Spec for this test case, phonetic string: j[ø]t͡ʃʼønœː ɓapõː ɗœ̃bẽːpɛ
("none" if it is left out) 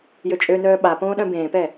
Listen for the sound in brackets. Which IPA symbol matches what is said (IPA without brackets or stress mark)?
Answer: ø